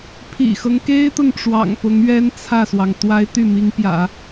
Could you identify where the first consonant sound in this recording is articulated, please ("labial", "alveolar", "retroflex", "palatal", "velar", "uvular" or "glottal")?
labial